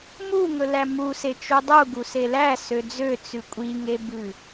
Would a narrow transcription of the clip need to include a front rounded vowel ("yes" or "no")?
yes